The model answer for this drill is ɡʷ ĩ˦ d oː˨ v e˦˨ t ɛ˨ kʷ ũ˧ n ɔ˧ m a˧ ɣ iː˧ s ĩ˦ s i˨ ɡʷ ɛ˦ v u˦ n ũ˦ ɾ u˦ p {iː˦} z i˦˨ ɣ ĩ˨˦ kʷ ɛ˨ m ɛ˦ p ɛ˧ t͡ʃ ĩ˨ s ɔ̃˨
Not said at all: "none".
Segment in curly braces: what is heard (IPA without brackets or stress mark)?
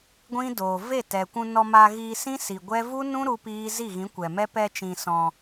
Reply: iː˦